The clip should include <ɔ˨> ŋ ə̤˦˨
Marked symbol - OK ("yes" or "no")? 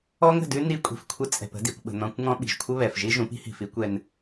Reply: no